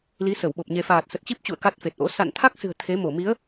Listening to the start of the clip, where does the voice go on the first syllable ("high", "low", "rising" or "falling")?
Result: rising